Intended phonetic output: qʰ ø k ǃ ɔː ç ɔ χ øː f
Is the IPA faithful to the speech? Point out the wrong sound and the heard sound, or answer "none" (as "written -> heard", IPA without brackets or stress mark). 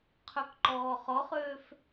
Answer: ç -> χ